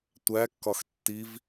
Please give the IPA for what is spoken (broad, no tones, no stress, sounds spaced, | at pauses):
tʷ æ kː ɒ x tː i v